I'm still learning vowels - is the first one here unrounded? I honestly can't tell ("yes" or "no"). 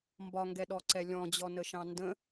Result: no